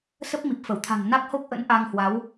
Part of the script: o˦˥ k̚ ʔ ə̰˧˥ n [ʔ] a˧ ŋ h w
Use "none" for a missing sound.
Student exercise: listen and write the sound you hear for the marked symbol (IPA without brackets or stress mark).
ʔ